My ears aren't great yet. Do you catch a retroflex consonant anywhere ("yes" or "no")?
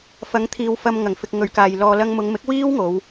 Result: no